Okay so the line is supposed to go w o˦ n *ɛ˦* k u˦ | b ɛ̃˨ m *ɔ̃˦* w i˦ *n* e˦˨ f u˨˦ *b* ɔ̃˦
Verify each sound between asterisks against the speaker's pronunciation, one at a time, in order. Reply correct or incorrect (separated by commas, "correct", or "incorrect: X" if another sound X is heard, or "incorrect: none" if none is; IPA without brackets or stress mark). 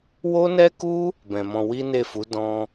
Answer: correct, incorrect: ɔ̃˧, correct, incorrect: d